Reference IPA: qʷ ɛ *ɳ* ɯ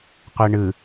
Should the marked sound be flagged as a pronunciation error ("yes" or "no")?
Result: no